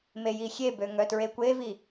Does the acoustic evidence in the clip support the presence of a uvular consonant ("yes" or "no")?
no